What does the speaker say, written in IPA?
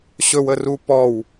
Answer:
ɕɵwəru pɔw

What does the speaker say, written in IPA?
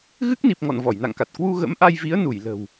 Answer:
ɣɨ˦˥k̚ni˨˩p̚ŋɔ̰˧˨n vɔ˧˩jna̰˧˨ŋka˨˩t̚ kwu˧ ɣə̰˧˥mʔa˧jvi˨˦ə̯ nu˧˩jlə̤˨˩w

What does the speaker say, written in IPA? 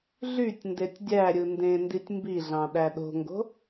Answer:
ɮytʲ ndetʲdʲæɾʲɯ ndẽnditʲ mbiɮɑ̃ ɗæɗo̤ŋɡo̤

